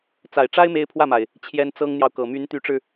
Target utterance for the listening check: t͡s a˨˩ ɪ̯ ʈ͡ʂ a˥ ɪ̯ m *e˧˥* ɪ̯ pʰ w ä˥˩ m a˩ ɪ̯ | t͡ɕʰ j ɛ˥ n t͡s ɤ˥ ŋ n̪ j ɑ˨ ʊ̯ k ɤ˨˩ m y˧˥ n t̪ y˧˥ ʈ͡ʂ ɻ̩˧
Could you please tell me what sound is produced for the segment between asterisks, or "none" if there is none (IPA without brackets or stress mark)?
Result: e˥